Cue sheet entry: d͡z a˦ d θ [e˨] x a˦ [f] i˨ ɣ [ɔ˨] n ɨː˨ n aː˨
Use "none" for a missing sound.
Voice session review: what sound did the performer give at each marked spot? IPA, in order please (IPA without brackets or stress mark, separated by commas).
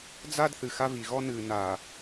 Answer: ɨ˨, v, ɔ˦